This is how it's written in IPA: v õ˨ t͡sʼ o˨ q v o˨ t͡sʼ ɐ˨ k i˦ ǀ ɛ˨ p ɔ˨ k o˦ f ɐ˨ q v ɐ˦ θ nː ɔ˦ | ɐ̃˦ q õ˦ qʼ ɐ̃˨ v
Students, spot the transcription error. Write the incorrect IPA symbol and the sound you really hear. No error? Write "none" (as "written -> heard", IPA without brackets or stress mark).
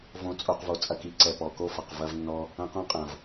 θ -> v